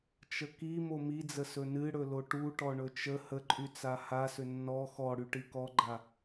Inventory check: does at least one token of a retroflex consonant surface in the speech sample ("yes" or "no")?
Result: yes